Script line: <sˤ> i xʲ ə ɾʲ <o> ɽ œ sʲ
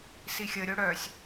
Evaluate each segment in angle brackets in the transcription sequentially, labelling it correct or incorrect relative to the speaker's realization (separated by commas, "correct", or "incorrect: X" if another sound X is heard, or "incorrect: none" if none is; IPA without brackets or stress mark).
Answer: incorrect: s, correct